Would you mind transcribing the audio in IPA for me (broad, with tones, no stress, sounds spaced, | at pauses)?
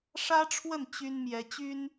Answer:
ʂ ä˥ ʈ͡ʂʰ w ə˥˩ n t͡ɕ y˥ n m j ɛ˧˥ t͡ɕ y˥ n